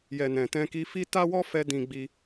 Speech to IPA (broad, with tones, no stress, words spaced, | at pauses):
jɛ˨ nɛ̃˨tɛ̃˧ki˧fi˦ ta˦wɔ˦fɛ˧ dĩ˧ɡ͡bi˧